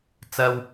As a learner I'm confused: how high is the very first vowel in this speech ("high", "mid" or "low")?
low